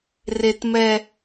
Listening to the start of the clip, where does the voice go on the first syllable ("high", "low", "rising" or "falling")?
high